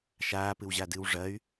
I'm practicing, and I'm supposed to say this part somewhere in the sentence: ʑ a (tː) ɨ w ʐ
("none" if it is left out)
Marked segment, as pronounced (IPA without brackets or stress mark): d